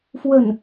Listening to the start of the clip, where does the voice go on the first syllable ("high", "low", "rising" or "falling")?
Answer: falling